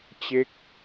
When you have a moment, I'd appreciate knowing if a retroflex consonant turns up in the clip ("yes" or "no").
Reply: no